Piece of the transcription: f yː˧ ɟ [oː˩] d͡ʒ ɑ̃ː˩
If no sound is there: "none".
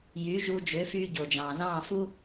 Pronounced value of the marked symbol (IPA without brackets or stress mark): o˩